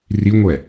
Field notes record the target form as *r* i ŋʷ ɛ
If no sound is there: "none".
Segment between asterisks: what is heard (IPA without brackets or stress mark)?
r